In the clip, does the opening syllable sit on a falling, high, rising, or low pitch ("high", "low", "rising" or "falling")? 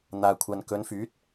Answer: low